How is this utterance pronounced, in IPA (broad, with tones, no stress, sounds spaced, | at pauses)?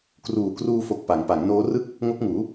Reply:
k r uː˨˩ k r uː˧ f o˨˩ k̚ p a˩˦ ŋ p a˩˦ ŋ n oː˦˥ r ɯ˥˩ k̚ | ŋ o˦˥ k̚ ŋ uː˩˦